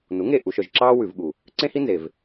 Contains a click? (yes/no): yes